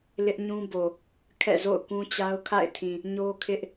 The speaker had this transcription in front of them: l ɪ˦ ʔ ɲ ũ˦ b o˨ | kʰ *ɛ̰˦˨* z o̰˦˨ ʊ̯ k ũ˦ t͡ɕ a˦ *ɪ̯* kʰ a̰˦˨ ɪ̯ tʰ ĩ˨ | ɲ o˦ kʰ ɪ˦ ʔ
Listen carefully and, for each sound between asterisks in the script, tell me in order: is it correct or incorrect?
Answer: correct, incorrect: ʊ̯

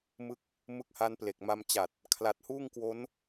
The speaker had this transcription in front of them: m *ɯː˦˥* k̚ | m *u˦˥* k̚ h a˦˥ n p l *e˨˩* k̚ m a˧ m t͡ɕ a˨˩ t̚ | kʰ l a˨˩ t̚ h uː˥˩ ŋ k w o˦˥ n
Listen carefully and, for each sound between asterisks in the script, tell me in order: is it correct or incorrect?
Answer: incorrect: ɯ˦˥, incorrect: ɯ˦˥, correct

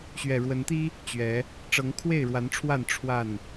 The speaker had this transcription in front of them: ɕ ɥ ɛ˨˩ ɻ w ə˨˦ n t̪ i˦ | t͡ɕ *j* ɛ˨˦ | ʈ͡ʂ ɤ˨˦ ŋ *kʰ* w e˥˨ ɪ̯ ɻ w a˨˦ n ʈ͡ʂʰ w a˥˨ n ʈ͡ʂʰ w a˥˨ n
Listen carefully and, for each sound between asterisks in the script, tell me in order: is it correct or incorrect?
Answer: incorrect: ɥ, correct

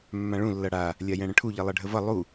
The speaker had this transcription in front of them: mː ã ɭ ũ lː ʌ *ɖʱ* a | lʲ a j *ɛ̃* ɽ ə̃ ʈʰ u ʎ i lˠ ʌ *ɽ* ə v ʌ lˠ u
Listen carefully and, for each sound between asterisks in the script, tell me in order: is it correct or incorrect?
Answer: incorrect: ɽ, correct, incorrect: ɖʱ

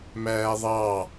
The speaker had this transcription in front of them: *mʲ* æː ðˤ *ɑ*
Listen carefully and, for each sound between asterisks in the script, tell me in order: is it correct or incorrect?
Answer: incorrect: m, correct

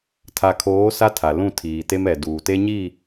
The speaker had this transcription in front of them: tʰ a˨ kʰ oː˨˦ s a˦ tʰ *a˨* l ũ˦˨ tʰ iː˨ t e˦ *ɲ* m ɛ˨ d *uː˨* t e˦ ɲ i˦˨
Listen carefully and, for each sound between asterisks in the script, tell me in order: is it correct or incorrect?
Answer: correct, incorrect: none, correct

